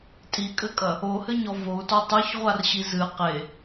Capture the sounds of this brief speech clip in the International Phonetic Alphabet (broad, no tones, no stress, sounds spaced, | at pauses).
tʼ i kʼ ɘ kʼ ɐ | o h ɘ ɲ ɔ v o u̯ t ɔ tˤ u ç ʁʷ a r ɕ i z ɨ q e